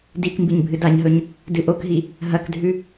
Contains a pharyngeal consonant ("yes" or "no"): no